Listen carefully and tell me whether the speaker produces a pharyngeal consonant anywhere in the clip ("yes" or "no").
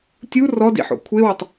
yes